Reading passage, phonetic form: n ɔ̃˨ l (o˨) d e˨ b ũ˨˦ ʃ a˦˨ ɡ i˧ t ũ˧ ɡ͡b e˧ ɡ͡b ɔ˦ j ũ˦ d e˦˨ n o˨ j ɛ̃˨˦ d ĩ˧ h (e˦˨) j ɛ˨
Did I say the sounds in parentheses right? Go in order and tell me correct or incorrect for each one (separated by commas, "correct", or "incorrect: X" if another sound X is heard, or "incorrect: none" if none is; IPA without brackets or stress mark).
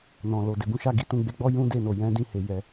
correct, incorrect: e˨